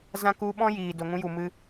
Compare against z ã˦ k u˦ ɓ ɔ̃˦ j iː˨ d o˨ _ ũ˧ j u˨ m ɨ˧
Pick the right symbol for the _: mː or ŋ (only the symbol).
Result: ŋ